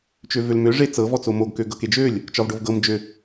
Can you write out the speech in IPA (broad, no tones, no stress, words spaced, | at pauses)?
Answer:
t͡ʃøvølmø ʐet͡sɤ vɔt͡somoɡ køɡɤked͡ʒølʲ | t͡ʃɒvɖovɡɤm d͡ʒø